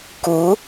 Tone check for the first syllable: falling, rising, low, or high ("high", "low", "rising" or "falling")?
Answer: rising